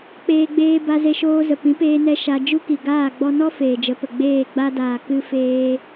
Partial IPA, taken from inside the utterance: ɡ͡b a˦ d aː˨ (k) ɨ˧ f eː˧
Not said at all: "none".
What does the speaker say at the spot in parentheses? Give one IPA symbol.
k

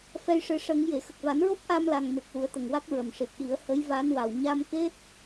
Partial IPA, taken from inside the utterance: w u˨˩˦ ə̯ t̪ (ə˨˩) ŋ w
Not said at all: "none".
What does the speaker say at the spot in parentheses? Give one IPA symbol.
ə˨˩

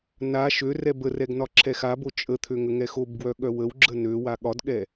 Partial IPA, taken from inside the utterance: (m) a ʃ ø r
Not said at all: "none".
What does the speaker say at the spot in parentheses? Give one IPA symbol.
n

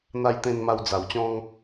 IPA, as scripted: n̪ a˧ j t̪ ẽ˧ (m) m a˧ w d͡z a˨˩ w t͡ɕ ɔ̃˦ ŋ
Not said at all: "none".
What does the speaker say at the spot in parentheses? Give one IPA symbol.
n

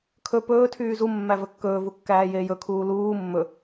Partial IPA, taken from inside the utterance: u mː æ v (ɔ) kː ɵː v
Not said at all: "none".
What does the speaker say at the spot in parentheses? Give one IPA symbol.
ɵ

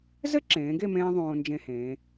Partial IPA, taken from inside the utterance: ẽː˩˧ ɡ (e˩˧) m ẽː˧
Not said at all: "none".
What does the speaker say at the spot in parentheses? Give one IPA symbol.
e˥˧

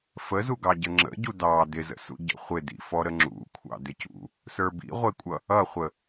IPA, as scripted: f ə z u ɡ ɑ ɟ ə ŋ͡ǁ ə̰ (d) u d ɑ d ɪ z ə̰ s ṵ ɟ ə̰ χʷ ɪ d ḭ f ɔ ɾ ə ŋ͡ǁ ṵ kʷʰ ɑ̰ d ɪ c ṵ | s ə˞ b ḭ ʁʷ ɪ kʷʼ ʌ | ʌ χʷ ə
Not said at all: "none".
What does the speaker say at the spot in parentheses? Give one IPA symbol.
ɟ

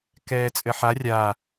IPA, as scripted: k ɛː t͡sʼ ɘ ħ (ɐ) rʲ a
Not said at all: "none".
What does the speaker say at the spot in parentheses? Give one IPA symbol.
a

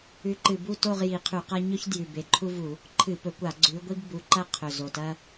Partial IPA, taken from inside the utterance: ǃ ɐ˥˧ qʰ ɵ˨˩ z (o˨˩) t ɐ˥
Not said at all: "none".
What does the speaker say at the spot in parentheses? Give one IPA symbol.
o˨˩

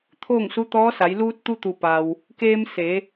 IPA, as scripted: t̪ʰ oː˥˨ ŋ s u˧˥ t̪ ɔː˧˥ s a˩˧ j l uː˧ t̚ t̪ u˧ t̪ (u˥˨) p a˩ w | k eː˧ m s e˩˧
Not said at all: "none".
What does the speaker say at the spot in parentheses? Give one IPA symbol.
u˩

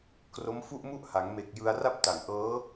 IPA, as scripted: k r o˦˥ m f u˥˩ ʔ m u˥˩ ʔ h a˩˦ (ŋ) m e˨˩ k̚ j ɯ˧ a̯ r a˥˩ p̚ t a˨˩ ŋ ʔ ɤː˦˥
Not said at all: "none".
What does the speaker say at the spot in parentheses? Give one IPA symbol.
ŋ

